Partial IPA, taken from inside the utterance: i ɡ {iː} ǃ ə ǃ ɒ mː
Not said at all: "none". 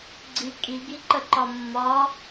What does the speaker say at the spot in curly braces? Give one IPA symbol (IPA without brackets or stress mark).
i